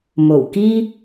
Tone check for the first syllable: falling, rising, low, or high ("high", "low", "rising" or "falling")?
low